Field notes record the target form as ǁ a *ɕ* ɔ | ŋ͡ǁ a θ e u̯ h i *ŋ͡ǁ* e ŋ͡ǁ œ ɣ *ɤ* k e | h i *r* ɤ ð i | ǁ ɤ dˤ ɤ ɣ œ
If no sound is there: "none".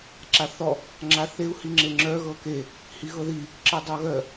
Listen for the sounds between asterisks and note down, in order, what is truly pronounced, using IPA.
θ, ŋ͡ǁ, ɤ, ɣ

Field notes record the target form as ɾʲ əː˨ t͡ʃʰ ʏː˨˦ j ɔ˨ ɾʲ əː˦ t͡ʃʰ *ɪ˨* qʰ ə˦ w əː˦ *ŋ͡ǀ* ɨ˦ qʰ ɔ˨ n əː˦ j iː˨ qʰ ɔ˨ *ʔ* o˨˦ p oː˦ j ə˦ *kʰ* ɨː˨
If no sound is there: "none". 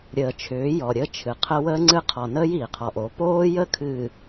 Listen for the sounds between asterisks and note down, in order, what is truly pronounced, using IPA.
ɨ˨, ŋ͡ǀ, ʔ, kʰ

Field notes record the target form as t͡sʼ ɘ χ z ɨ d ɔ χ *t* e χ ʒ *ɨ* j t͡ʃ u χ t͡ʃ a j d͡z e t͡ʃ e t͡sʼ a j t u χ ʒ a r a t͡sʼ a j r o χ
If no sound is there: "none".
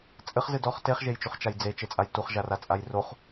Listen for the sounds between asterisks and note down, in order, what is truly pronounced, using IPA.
t, e

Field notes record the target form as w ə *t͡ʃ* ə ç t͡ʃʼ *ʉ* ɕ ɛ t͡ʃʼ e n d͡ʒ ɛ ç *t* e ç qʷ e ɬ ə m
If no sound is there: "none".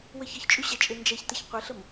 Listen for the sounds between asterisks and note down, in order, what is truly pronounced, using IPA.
ç, ʉ, t

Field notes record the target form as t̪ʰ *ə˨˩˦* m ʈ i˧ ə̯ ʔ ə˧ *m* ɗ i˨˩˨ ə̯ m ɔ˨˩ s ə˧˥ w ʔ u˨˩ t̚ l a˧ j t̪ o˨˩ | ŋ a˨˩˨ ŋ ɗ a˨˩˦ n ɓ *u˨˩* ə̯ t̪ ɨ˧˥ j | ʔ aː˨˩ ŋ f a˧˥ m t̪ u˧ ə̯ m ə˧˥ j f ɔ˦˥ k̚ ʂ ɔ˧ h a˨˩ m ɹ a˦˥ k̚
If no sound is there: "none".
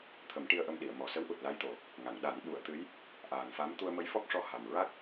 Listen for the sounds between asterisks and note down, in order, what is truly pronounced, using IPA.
ə˨˩˦, m, u˨˩˦

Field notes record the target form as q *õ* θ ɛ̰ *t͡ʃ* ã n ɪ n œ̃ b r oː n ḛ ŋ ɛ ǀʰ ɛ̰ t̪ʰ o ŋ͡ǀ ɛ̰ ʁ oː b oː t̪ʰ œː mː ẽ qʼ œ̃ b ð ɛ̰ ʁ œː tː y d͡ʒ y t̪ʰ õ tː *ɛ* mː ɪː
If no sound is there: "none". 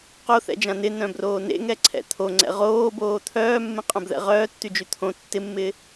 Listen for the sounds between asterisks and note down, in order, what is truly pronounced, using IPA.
o, d͡ʒ, ɪ

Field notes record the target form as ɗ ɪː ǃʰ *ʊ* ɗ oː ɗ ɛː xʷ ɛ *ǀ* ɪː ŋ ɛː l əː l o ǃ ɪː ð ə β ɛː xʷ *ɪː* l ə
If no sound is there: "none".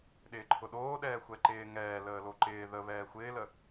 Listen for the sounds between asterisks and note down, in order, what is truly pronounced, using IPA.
ʊ, ǃ, ɪː

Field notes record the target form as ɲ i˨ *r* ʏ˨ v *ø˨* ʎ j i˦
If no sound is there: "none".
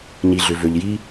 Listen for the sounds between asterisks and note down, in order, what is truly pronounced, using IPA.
ɮ, ø˨

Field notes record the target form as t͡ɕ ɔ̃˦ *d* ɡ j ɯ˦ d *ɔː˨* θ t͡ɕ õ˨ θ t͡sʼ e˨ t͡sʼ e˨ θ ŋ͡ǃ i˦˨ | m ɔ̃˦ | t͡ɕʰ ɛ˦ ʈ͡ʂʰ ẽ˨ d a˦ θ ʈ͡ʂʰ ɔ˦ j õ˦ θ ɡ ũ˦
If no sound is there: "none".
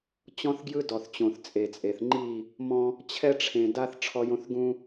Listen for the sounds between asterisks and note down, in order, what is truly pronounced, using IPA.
θ, ɔ˨

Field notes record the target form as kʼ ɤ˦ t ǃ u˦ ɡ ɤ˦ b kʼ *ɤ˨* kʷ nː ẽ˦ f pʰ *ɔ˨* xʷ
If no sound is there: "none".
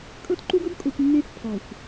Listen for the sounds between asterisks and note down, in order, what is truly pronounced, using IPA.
o˨, ɔ˨

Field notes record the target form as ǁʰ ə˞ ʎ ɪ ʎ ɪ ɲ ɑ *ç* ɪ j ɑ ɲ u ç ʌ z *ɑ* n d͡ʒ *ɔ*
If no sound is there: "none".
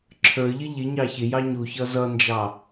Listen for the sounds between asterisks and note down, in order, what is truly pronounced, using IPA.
ç, ʌ, ɑ

